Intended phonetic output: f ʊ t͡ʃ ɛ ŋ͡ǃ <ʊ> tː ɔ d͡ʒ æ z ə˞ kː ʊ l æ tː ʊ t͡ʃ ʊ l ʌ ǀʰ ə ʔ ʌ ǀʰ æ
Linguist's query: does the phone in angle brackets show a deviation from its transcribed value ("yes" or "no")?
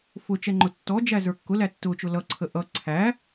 no